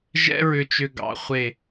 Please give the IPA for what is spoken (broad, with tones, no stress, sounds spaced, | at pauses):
ʒ ɛ̰˥ ɹ ʏ˧ t͡ʃ ʏ˧ ɡ ɑ̰˩˧ χʷ e˧˩